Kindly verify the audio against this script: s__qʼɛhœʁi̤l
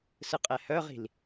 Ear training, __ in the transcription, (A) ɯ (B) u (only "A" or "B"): A